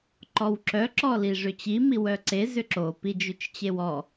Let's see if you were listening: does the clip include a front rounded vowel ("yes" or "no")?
yes